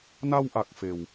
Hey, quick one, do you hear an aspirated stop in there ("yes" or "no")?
no